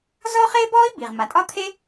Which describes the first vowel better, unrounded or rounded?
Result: rounded